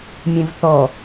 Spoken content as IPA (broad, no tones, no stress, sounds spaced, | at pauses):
mʲ ẽ v θ ɔ